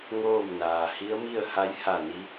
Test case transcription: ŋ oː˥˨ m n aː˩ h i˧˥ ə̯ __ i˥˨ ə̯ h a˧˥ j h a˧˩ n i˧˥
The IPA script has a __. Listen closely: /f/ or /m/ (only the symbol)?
m